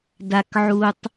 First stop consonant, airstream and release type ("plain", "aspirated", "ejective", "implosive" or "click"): plain